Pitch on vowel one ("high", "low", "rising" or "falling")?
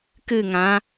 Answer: falling